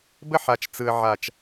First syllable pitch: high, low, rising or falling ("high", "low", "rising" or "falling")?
high